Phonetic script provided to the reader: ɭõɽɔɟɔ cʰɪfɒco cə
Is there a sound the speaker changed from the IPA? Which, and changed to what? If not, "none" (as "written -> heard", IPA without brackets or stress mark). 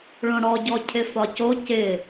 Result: ə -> ɪ